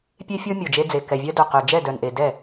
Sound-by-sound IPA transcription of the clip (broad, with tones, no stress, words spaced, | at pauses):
pʲe˦fʲo˦ mʲo˨˩d͡ʒe˦d͡ze˨˩ kɛ˨˩vʲœ˦dœ˨˩qœ˨˩ d͡ʒɛ˥˩dœ˨˩nʔe˨˩ dɛ˥˩